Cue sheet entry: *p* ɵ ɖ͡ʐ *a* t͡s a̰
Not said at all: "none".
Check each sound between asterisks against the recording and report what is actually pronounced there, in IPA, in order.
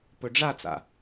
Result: p, a

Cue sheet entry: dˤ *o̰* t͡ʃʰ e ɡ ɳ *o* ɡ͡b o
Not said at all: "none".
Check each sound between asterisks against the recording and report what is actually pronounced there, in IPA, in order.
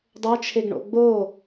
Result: o, o̰

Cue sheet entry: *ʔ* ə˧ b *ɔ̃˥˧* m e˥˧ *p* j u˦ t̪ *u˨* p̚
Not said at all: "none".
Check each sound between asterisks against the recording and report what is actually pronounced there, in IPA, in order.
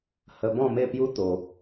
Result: h, ɔ̃˥˧, p, o˨

